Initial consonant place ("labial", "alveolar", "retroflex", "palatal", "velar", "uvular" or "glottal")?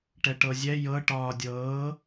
retroflex